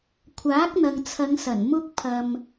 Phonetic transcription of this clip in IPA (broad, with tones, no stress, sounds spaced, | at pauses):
kʷʰ aː˨˥ k̚ n̪ ɐ˨ ŋ t͡sʰ ɐ˨˧ ŋ s ɐ˨˩ n m ʊ˧ k̚ pʰ ɐ˨ m